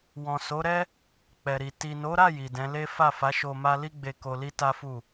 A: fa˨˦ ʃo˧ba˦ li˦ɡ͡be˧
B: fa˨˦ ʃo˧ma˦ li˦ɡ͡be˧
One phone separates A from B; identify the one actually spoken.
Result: B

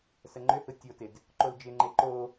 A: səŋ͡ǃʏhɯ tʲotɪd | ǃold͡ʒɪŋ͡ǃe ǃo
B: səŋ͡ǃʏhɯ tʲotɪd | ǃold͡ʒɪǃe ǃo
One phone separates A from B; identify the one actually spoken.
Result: A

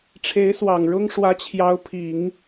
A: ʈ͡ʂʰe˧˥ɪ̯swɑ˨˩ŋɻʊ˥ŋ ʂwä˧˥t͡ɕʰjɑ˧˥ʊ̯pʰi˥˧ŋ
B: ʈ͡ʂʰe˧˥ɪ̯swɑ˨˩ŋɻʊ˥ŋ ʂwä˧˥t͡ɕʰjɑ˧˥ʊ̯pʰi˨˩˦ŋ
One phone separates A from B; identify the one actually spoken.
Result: B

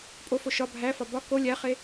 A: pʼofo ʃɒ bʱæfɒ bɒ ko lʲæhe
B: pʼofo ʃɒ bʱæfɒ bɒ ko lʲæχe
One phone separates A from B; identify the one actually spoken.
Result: B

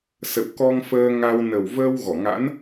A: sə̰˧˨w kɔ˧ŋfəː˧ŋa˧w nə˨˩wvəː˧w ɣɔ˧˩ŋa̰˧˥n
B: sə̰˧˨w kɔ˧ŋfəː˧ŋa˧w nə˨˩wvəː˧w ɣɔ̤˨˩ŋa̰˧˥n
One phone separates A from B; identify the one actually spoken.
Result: A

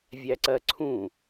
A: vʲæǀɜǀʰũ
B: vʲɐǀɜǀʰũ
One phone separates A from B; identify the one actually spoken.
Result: A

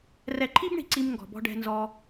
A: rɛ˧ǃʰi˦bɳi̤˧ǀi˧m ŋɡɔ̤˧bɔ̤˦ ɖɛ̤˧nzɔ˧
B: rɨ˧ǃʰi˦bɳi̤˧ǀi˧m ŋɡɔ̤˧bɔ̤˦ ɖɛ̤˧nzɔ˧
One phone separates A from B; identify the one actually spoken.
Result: A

